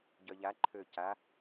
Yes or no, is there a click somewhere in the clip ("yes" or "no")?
yes